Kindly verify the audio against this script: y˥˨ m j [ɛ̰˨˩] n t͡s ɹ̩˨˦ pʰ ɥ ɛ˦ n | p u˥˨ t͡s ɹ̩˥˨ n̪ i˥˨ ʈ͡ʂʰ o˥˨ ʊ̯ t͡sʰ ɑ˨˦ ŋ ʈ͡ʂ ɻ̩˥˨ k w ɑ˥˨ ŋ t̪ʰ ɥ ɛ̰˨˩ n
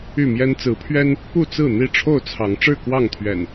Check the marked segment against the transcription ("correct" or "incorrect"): incorrect